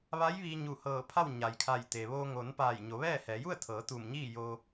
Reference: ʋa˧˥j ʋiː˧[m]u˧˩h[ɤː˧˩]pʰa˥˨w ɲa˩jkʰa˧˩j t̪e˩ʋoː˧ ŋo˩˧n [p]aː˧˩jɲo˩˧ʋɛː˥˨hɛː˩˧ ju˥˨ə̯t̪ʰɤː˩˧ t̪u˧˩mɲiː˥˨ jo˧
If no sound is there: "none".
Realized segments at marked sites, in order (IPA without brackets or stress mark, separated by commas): ɲ, ɤː˧˩, p